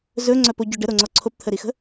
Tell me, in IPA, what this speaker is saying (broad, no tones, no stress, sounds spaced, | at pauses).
z ɵ ŋ͡ǀ œ p o ɟ ɵ ɖ ə ɾ o ŋ͡ǀ ɔ ǀʰ o p t̪ʰ ə ɾ i x ə̤